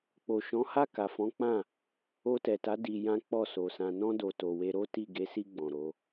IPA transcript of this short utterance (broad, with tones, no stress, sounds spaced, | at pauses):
k͡p o˨ ʃ ɔ̃˨˦ h a˦˨ k a˨ f ɔ̃˨˦ k͡p ã˦˨ | o˧ t ɛ˨ t a˨˦ d i˧ j ã˦ k͡p ɔ˦˨ s o˨ s ã˨ n ɔ̃˧ d o˨ t o˨ w e˧ ɾ o˦ t i˦˨ ɡ e˨˦ s i˧ ɡ͡b ɔ̃˨ ɾ o˨˦